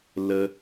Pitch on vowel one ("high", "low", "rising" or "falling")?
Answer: high